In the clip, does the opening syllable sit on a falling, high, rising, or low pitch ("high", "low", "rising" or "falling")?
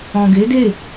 low